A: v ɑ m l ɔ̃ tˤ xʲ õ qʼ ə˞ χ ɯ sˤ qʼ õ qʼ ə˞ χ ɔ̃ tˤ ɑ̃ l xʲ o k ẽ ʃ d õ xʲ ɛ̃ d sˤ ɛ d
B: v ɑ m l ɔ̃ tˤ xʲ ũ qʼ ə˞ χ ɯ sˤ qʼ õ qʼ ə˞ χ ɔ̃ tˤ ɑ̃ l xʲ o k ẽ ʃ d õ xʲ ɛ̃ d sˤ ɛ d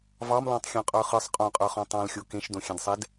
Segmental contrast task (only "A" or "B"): A